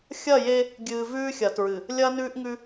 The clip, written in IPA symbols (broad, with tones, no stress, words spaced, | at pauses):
xʲɐ˦˨je˦ | ɡʲɨː˨vʉː˦ xʲɐ˨tɹɨ˨ | lʲɐː˦nʉː˦ʔŋʉ˦